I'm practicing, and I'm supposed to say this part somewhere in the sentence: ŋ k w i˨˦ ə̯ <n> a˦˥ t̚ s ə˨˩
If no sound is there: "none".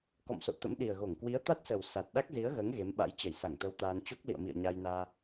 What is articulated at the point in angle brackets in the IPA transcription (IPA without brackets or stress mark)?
t̪